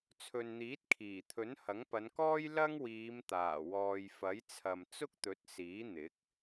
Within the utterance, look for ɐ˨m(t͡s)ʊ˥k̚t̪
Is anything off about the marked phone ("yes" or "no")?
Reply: no